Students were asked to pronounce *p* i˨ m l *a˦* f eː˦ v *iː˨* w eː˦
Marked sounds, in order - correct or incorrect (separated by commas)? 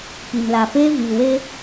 correct, incorrect, correct